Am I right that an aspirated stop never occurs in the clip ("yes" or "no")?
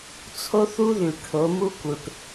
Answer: no